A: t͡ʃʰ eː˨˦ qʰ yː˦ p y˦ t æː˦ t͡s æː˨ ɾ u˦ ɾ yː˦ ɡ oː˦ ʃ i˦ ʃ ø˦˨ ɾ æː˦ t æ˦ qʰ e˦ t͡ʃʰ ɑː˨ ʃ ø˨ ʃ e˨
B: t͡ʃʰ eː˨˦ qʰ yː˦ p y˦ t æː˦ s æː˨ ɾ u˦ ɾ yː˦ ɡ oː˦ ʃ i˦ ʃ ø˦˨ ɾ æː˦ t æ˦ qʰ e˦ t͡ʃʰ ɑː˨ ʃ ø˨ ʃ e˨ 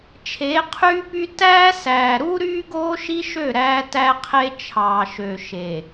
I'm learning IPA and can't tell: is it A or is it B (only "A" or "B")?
B